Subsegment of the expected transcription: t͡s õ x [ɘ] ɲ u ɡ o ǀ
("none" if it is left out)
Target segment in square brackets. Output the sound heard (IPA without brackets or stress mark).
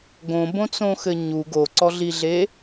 ɘ